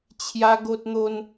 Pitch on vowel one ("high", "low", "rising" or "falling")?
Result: high